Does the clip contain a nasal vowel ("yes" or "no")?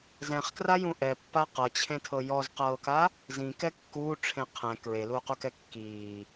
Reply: yes